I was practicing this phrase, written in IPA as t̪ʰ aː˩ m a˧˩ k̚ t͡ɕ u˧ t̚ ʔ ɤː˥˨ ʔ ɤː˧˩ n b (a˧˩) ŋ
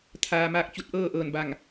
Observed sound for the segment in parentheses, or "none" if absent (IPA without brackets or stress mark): a˧˩